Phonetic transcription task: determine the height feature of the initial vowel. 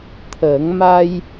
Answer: mid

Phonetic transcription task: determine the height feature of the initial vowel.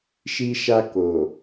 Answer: high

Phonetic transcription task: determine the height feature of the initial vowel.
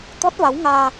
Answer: mid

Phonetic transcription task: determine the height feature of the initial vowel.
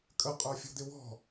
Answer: mid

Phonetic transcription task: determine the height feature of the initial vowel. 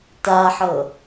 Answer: low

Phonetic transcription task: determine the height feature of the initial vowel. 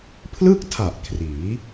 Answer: high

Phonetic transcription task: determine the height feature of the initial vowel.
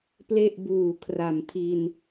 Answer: mid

